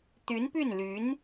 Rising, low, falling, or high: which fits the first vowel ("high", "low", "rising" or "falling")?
rising